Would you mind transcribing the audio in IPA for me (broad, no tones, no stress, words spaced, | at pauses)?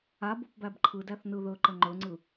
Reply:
abop bæbǃʰɯdæθ nɯðɵǃə ŋ͡ǃɵŋ͡ǀɯ